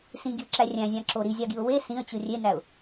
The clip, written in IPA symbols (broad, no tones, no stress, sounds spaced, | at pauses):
s ĩ ɡ i ə̯ ǁ æ rʲ æ̃ zʲ ɑ̃ ǁ o ɾ i zʲ ɑ ɡ i ʊ̯ w e s ĩ ə̯ t͡ɕ ɯ rʲ e n æ ʊ̯